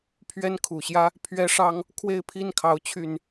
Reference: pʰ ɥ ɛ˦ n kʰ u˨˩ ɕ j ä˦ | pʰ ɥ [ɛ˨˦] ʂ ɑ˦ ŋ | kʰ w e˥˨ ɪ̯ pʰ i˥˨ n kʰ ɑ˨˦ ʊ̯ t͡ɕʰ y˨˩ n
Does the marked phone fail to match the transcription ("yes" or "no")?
yes